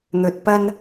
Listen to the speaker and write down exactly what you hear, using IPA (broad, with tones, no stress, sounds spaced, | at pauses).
n̪ ɵ˨ t̚ p ɐ˧ n